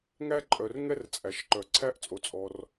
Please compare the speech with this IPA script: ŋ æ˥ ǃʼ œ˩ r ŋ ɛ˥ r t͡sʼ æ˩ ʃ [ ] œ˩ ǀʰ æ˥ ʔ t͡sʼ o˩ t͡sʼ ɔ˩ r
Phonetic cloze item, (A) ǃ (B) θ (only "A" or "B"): A